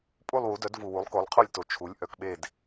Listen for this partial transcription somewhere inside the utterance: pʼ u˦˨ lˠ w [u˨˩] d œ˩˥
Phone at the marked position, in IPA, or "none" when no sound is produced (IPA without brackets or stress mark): u˩˥